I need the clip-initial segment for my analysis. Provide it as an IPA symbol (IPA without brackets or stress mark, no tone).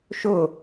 ʃ